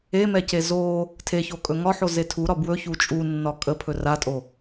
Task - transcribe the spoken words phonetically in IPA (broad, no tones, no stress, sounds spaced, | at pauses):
e m ɛ c e z o | tʰ e ç o kʼ ɵ ŋ ɒ ħ o z e tʰ u ɾ ɒ b w ɵ ç u t͡ʃʼ u nː ɒ kʼ ə pʰ ɵ r a tʼ o